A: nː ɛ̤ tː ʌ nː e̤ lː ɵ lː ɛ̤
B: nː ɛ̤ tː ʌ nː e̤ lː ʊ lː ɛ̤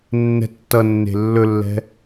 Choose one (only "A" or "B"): A